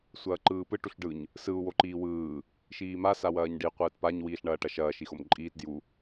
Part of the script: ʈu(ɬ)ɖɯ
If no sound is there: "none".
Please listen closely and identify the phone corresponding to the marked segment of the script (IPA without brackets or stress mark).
ɬ